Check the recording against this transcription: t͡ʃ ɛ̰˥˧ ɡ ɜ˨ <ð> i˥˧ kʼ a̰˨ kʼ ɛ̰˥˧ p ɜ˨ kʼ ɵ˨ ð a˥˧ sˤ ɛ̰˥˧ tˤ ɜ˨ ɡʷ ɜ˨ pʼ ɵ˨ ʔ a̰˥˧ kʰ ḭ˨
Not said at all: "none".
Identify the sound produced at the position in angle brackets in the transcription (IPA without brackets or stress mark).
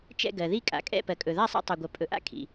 ð